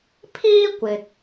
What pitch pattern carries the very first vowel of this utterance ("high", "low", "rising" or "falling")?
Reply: high